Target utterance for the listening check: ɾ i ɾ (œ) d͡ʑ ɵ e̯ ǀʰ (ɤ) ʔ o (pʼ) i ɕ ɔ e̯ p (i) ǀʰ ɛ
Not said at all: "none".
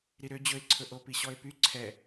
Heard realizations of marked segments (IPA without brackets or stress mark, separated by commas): ø, ɵ, p, y